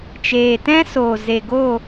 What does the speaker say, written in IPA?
t͡ʃeː˨ tɛ̃˦soː˨ ze˨ɡo˦˨

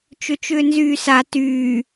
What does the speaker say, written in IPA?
t͡ʃʏt͡ʃʏːnzyːsa tyː

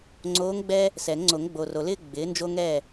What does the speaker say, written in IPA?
ŋ͡ǀoː˧˥ŋɡ͡bɛ˥ | sɛ˨˩˦ŋŋ͡ǀo˨˩˦ŋ ɡ͡bo˨ro˨lɪː˥ ɡ͡bɪː˩˥ nd͡ʒo˥ŋɛ˥˨

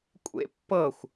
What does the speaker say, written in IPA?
kʷʼḛ pːɤxʷ

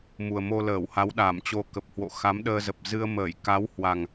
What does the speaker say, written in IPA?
mu˨˩ə̯mo˧ləː˧˩wha˨˦w ɗa˧˩mt͡ɕo˧ kə˨˩p̚hwo̰˧˨ xa˨˦mɗəː˧zə˨˩p̚ zɨ˧ə̯məː˧˩j ka˨˦whwa˨˩ŋ

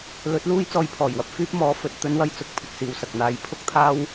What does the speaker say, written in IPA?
lɵ˨˥t̚luː˥j t͡sɔː˥jpʰɔː˨˩jwɐ˧p̚ fyː˥p̚mɔː˨˥ fɵ˧t̚t̪ɵ˥nwɐ˥j t͡sʊ˨˥k̚pʰɪ˧k̚siː˨wsɐ˨k̚ n̪aː˨˥jpʰʊ˥k̚t̪ʰaː˥w

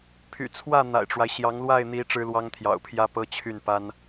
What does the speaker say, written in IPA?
pʰy̰˨˩t͡sʰwä˥˩ n̪a̰˨˩ɪ̯ʈ͡ʂwa˦ɪ̯ɕjɑ˧˥ŋ lwa˥˩ɪ̯n̪i˧˥ ʈ͡ʂɻ̩˥lwɑ˥ŋt̪ʰjɑ̰˨˩ʊ̯pʰjä˥ pɤ˥t͡ɕʰy˥˩npa˥n

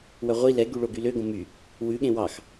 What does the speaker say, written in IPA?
wœʁʷi lɛ ɡyɭoɡylø ɡõmy | wʉ ɠẽwɑx

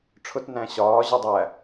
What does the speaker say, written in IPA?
ʈ͡ʂʰʊt næ̃ɕɒː ʑʊdˤæ

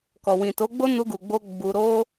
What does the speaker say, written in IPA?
kɔ˨ wĩ˨to˨˦ɡ͡bo˦ nu˧ɡu˨ɡ͡bo˧ ɡ͡bu˧ ɾo˦

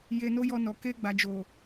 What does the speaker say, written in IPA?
je˧no˦jɔ˧nɔ˨ ke˧ɡ͡ba˨d͡ʒo˨

